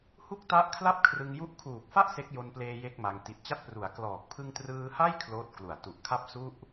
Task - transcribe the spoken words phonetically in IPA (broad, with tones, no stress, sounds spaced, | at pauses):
h u˥˩ k̚ t a˦˥ ʔ kʰ l a˥˩ p̚ kʰ r ɯ˧ ŋ j u˥˩ ʔ kʰ uː˨˩ k̚ f a˥˩ ʔ s e˦˥ k̚ j o˧ n p l eː˧ j e˥˩ k̚ m a˧ ŋ t i˨˩ t̚ t͡ɕ a˦˥ t̚ p r u˩˦ a̯ k l ɔː˨˩ k̚ pʰ ɯ˧ ŋ t r ɯː˧ h a˥˩ j kʰ l oː˦˥ t̚ k l u˨˩ a̯ t u˨˩ ʔ kʰ a˦˥ p̚ s u˥˩ ʔ